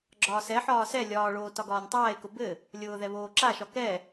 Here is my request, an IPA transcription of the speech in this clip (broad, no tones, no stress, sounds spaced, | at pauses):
ɡ͡ǁ ɒː s ɛ ħ ɒː s ɛ lʲ ɒː ɭ oː t ɒ ɡ ɒː nʲ tˤ aː e̯ k ʊ b ɘ | lʲ ʊː ð ɛ β oː ǁ a ʃ ɒ k ɛ